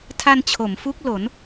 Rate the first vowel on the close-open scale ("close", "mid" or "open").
open